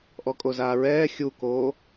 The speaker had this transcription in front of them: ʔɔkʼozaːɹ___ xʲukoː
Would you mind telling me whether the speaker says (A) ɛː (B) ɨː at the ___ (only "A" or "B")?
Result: A